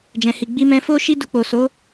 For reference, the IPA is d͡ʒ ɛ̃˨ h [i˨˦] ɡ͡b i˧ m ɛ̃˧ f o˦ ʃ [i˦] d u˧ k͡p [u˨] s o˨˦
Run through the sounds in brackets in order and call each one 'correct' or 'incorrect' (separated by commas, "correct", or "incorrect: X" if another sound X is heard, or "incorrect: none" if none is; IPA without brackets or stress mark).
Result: incorrect: i˨, correct, incorrect: o˨